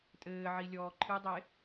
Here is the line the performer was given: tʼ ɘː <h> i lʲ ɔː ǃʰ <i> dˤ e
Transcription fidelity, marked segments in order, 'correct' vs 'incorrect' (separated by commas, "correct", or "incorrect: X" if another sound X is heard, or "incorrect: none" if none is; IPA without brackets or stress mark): incorrect: ʕ, incorrect: ɨ